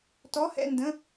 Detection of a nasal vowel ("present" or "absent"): present